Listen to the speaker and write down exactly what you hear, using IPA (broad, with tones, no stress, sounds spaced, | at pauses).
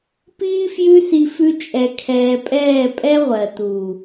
p iː˦ f j ʉ˦ s i˧ f ʉ˧ t͡ʃʼ ɛ˨ kʰ ɛː˨ pʼ ɛː˦˨ pʼ ɛ˦ ʁʷ ɜ˨ t u˨